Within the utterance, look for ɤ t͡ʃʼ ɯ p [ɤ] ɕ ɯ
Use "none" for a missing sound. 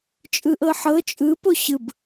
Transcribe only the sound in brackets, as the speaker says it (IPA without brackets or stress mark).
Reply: o